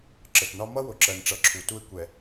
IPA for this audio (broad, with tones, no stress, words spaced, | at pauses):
ǁə˨tnɒ˦ mʌ˦wʊ˨ǁɜ˨nʈ͡ʂʌ˨˦ ǁʰu˨tu˦ɪ̯ kʷɛ˨